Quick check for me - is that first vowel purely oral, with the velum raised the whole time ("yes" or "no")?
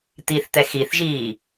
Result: yes